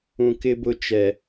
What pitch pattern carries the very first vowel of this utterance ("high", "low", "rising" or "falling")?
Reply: low